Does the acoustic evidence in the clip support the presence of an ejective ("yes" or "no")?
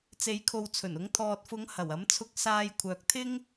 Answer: no